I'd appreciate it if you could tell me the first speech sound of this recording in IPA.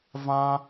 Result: v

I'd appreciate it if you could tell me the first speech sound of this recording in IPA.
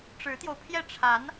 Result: ʈ͡ʂ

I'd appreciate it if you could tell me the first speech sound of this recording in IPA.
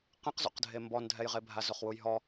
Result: q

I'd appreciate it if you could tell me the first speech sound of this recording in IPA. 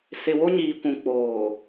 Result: s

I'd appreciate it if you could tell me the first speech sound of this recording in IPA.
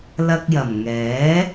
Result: l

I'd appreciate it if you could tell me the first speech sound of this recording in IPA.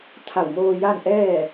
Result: t̪ʰ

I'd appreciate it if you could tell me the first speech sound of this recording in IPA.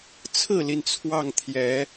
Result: t͡sʰ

